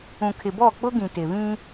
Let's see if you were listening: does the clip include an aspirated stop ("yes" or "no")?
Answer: yes